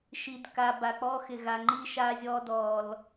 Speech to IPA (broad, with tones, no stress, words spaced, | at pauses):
ʃi˨dka˨ ba˨k͡pɔ˦xɪ˨ ɣa˨ŋ͡ǃi˦ʃa˦zʲɔ˦ dɔ˨l